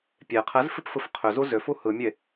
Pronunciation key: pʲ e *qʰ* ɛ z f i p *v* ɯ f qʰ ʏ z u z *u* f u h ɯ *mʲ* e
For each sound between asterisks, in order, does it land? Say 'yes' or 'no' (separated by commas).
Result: yes, no, no, yes